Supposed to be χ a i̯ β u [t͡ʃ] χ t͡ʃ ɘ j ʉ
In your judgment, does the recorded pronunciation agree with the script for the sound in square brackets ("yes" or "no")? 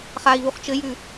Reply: no